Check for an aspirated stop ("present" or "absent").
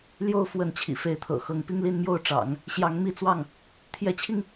present